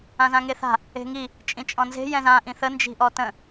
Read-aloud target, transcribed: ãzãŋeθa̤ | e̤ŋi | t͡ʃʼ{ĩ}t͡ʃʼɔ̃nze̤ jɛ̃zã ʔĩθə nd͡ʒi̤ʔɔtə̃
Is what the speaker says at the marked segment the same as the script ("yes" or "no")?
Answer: yes